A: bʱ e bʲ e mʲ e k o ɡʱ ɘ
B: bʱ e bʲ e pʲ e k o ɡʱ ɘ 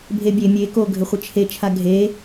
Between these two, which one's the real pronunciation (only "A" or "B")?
A